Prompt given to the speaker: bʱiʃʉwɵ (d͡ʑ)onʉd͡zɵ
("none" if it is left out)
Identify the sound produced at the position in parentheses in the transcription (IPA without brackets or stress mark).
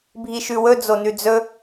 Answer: d͡z